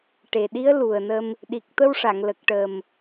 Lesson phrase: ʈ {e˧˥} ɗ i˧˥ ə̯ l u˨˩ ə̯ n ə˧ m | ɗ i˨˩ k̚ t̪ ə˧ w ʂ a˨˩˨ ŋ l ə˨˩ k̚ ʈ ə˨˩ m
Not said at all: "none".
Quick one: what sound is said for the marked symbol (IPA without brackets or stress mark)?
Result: e˨˩